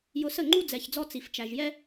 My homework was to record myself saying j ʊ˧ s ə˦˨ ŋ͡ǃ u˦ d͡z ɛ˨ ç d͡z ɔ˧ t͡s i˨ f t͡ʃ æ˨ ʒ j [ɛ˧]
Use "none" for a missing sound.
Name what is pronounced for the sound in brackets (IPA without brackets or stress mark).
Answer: ɛ˦